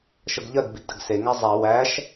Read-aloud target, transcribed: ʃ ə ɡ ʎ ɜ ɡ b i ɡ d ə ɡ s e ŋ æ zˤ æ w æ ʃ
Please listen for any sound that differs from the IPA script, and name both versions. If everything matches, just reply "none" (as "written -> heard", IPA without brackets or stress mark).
none